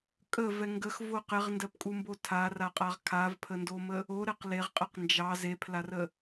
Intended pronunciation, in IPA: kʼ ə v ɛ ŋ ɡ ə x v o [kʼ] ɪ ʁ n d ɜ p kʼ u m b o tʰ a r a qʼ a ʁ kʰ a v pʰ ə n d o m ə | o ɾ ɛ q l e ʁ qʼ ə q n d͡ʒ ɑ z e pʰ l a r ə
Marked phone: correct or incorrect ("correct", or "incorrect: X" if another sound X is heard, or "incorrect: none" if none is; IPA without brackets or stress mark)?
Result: incorrect: q